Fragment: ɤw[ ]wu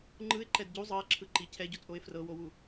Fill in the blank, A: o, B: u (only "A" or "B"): A